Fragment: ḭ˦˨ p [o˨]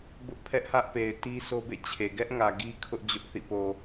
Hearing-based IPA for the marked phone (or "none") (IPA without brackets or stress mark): o˨